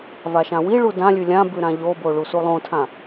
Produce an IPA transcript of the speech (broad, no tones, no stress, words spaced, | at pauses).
vaʃãwiɭu dãlʲʉ lʲãbʉ ɾãʎobo ɭusulˠõtʰã